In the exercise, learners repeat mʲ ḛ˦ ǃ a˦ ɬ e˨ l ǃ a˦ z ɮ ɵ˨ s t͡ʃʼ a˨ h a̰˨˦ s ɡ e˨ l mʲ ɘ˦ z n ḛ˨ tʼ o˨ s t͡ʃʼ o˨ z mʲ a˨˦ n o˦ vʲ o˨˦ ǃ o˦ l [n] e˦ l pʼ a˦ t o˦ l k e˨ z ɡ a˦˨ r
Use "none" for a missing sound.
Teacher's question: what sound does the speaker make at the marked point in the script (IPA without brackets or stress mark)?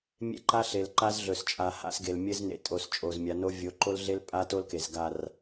ɮ